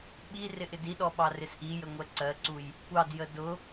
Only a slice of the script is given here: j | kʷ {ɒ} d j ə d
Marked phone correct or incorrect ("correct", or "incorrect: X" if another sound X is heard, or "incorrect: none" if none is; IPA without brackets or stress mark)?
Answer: incorrect: ɑ